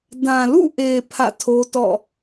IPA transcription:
d ã˨ l ṵ˦˨ ʔ e˨ pʰ ä̰˦˨ tʰ o˦ t ɔ̰˦˨

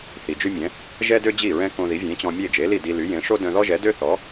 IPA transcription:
θ i˩ d͡ʒ y˥ mʲ ɛ̃˩˥ | ʒ ɛ˥ d ø˥ d͡ʑ i˥˩ ɹ ɛ̃˥ k õ˧ ð i˩˥ vʲ ẽ˩˥ t͡ɕ ɔ̃˧ mʲ e˥˩ d͡ʒ e˩˥ l i˥˩ d i˧ l y˩˥ j ẽ˩˥ ʂ o˥ d œ̃˧ ð ɔ˥ ʒ ɛ˩˥ d ø˥ θ ɔ˩˥

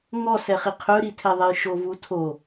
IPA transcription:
ŋ ɔ s ɛ χ i qʰ ɵ ɾ i tʰ ɛ ðˤ ɛ j ʃ o v u tʰ o

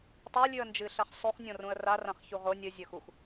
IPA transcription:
tˤ o lʲ ʉ ə̯ n d͡ʒ ɨ ɬ ɐ χ sˤ ʉ χ nʲ õ r ũ ə̯ r a r ã χ ç u ʁ o nʲ ɨ zʲ ɵ x u x

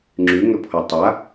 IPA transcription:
ŋ͡ǁ y ŋ ɵ pʰ ɔ tˤ a

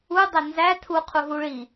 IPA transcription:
u dˤ æ n z æ tʰ u qʰ u ɦ u ɭ i

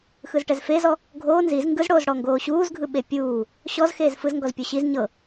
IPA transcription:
x ɯ z ʈ ɛ z f e z ɔ | ɡʱ oː n z i z ŋ ɡ ɯ z ɽ oː z ɽ ɔ ŋ ɡ oː ɕ uː z ɡʱ ɯ ɓ e pʲ uː | ɕ ɔ z x eː z f ɯ z ŋ ɡ ɔ z pʲ o ɕ i z ɲ ɤ

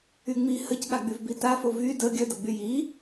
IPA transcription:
y ŋ͡m i h ə c ɠ a ɡ͡b y v b i t a f o v y d ə ɡʲ œ d ə ɡ͡b y j i

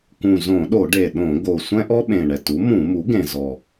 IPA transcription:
k ũ˨˩ z õ˧˩˧ ɗ o˧˩˧ ɖ e˨˩ ɗ õ˧˩˧ ɡ o˨˩ sʷ ɛ̃˥ ʔ ɔ˥ ɓ ẽ˨˩ ɳ ɛ˨˩ t u˩˥ m ũ˧˩˧ m u˩˥ ɡ ẽ˨˩ z ɔ˨˩

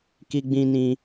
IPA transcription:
k i˦ ɡ͡b ĩ˦ n ĩ˧

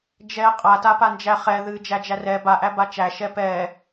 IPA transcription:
d͡ʒ ɛ qʼ a t a p a n d͡ʒ æ χ ɛ ð ɨ d͡ʒ æ d͡ʒ æ r ɛ b a ʔ æ b a t͡ʃ æ ʃ ɛ p ɛ

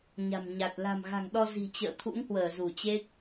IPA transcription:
ɲ a̤˨˩ m ɲ a˨˩ t̚ l a̤˨˩ m ɣ a̤˨˩ ŋ ɗ ɔ˧ z i̤˨˩ t͡ɕ ə̰ː˧˨ t̪ʰ ṵ˧˥ ŋ h w əː˧˩ z u˧˩ t͡ɕ e˦˥ k̚

